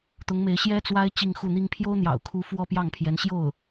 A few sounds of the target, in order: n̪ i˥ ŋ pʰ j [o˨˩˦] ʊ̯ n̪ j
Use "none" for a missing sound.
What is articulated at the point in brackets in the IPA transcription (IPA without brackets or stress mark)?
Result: o˥